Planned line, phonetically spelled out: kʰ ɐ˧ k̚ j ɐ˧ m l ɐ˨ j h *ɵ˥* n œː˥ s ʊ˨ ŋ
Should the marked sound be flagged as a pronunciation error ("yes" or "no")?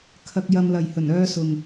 yes